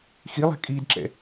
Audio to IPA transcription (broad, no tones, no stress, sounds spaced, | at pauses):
x i lˠ ɛ̤ kʼ iː d ǁ ɛ̰